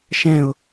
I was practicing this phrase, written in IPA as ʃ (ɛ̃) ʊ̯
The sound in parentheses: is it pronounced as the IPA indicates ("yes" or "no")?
yes